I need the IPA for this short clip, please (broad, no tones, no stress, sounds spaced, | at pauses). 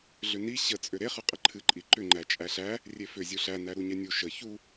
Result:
ɮ ʏ n i ɕ ə t͡sʼ ʏ ɾ e χ ɨ qʼ ə ǃʰ ɨ ǃʼ i ǃ ʏ ŋ͡ǃ æ t͡ʃʼ æ ɬ æ | rʲ e f ʏ zʲ u ɬ æ n æ ɾ u ɲ ɛ nʲ u ʃ ə ç u